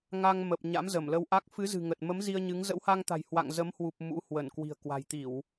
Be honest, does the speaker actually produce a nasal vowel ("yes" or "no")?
no